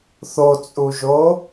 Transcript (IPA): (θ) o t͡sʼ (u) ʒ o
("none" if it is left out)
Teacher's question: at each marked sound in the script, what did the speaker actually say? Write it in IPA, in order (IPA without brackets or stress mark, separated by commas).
θ, u